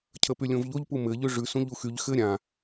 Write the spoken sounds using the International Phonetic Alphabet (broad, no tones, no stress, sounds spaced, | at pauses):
cʰ ə p y lʲ õ v ʎ o ʎ p u m ɘ ʎ ʉ ʐ ʉ s ũ ʎ u x y ʎ x ɘ ɾʲ ã